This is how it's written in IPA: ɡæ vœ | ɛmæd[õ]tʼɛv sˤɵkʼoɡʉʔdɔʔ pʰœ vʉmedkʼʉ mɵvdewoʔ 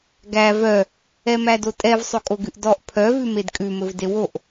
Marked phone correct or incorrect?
incorrect